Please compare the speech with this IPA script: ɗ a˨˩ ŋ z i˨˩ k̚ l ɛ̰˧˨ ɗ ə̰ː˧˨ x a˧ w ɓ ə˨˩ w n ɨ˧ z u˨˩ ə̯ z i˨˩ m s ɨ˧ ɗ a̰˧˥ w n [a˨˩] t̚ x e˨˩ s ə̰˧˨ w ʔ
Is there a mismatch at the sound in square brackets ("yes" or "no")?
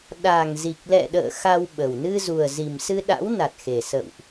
no